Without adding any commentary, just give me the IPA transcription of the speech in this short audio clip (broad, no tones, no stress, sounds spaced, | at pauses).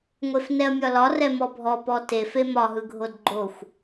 ŋʷ e f n ɛ ɐ̯ mʲ ɒ l ɒ r ɛ m ɔ bʱ ɔ p ɔ t e f e m ɒ ɦ ɯ ɡʱ o d ɡ͡ǃ o xʷ